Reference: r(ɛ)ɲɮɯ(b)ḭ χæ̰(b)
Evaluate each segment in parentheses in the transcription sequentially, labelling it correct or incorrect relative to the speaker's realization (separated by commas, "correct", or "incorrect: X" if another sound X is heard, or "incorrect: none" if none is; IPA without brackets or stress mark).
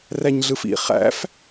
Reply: incorrect: æ, incorrect: f, incorrect: f